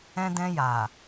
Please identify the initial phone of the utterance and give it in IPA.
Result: ɛ̃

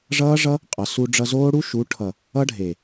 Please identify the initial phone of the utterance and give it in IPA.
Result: ʐ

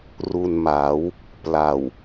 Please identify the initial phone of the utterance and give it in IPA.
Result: r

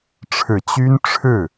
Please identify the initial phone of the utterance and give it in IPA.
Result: ʈ͡ʂʰ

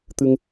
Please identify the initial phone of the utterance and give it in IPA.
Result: t̪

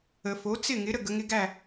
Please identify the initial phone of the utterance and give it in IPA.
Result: ə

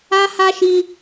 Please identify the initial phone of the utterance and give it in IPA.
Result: a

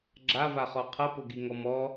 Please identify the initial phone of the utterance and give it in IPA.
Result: ɡ͡ǁ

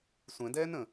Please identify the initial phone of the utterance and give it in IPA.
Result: sʷ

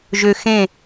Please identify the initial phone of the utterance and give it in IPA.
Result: ʒ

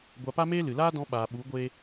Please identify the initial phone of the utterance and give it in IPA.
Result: ɡʷ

